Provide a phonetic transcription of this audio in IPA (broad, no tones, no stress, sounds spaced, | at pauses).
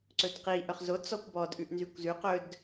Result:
ǀ ɵ d q i ʔ œ χ z o t͡s ɔ kʷ b ɔ d ʔ ʉ ʔ n z y kʷ z ʉ q ɵ d